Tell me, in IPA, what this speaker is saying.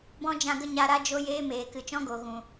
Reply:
bɔ̃˦ d͡ʒã˧ ɡə˦ɲa˧ɾa˦ d͡ʒo˦jeː˦meː˨ kɨ˨t͡ʃɔ̃˦ɡo˨ ɣũ˨

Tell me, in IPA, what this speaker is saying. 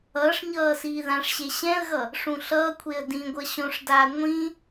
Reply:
ʌːʂɲʌː siːðãʂɕe ɕɛ̃ə̯ɣʌ | ʂũɬʌːkʷʰeə̯ dĩɡʷʌ ɕõʂdaː ŋʷĩ

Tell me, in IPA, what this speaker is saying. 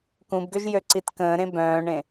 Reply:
kũbɡøʒ jøǀitkə̃ːɾẽ bœ̃ːɳẽ

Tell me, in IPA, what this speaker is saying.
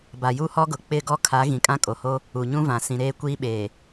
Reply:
ba˨ju˦hɔ˦ɡʊ˨ k͡pɪ˦˨ ɡɔ˦kʰa˨˦ ɣĩ˨kʼã˦kʼo˨ho˦ | u˨ɲũ˦ vã˨sĩ˨ ɾeː˦kʷiː˦ɓeː˨

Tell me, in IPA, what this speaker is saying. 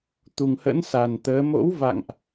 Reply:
t̪u˨˩ŋhə̰˧˥nsa˨˩n t̪əː˨˦ mo̰˧˥wva̰˧˨ŋʔ

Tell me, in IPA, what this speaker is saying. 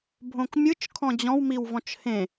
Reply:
bʱõkmʲɯt͡ʃ kʰɔ̃d͡ʑɔ̃w miwvɔ̃t͡ʃhẽ

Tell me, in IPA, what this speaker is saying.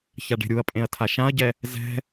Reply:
çaɖe̤ɾʲuɐ̯pʼẽɐ̯ tʰaʃãɐ̯ɟɛ | zɛ̤

